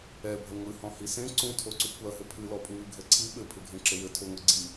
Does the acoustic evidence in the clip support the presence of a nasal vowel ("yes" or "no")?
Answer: yes